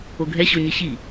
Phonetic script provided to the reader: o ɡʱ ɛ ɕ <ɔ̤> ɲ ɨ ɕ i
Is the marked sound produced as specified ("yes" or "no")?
no